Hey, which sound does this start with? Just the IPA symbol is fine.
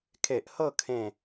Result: kʰ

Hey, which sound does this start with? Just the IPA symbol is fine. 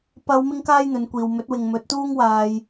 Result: p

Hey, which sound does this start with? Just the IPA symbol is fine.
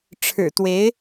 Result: ʈ͡ʂʰ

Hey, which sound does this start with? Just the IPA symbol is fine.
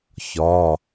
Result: ç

